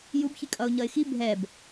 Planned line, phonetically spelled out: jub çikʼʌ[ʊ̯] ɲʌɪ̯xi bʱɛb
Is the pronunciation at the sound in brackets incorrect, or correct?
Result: correct